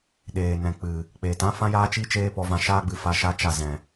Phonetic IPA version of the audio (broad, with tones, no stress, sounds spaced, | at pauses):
ɗ eː˨ n ɛ̃˨ k͡p ɨ˨ | k͡p eː˨ t ã˦ f ã˦ j aː˦ t͡ʃ i˦ t͡ʃ eː˦ p ɔ˧ v ã˧ ʃ aː˦ ɡ͡b ɨ˧ f a˧ ʃ a˦ t͡ʃ a˦˨ z ɛ̃˨